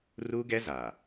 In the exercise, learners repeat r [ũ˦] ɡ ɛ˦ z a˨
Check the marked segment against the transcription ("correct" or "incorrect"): incorrect